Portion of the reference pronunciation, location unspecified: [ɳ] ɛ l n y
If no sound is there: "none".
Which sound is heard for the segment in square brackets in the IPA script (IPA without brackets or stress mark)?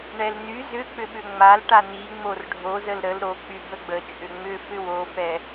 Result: ɳ